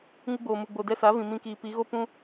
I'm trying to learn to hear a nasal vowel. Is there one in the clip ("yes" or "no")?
yes